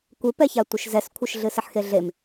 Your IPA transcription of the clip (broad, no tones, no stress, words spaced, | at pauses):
kʷɪpɛça tʷɪʃzɛskʷʰɪʃ ɮɨsɪħxeɮem